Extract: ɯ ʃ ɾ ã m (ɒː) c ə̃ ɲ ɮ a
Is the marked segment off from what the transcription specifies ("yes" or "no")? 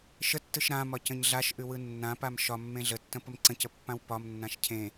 yes